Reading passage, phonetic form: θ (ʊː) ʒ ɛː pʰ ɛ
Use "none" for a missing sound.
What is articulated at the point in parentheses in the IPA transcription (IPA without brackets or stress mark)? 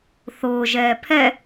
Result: ʊː